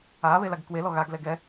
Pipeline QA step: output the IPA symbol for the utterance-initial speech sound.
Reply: aː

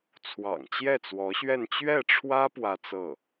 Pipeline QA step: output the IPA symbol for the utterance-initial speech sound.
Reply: t͡sʰ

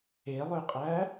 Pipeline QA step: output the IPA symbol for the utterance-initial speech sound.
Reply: e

